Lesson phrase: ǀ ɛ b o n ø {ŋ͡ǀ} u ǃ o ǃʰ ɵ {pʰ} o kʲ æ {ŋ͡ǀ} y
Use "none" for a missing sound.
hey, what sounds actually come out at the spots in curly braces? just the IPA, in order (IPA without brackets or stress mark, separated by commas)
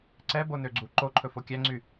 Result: ɡ͡ǀ, f, ŋ͡ǀ